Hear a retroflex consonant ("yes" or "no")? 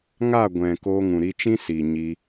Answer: no